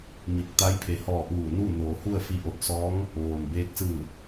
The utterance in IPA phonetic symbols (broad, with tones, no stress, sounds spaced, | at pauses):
m i˧˩ k̚ t̪ a˧˥ j pʰ e˩˧ h ɔː˧˩ ʔ uː˧˩ n uː˥˨ n oː˩˧ h u˥˨ ə̯ f i˧ ʔ o˧˩ t̚ s ɔː˧˥ ŋ | ʋ oː˩ m b eː˧ k̚ s ɯː˧˩